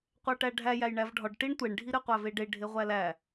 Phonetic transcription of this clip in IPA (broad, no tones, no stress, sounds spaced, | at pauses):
qʷ æ ʈ æ ɖʱ æ j æ j ɳ æ v ɖʱ ɒ ɖ ʈ i ɳ tʷ e ɳ ɖʱ i ɾ e qʷ æ v e ɖ e ɖʱ e ʁʷ æ l æ